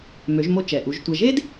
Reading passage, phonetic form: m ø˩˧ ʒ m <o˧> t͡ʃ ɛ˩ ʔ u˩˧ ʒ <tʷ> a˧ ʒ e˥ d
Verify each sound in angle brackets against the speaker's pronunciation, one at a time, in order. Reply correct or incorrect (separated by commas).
correct, correct